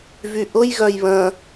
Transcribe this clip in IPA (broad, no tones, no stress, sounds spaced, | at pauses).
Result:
v y ʔ ʊ j ɣ œ j β ə̃